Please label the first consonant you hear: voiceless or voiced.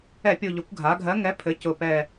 voiceless